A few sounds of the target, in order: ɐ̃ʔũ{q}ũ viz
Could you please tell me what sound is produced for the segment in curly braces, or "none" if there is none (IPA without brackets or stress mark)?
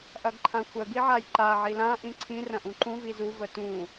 ǃ